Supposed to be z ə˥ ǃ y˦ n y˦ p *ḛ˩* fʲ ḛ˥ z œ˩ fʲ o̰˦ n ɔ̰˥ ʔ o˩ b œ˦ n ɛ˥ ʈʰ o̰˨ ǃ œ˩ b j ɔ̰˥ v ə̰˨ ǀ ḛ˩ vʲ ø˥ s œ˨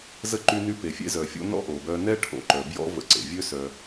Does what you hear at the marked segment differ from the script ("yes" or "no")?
yes